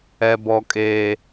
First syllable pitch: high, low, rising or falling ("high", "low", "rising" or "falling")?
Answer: high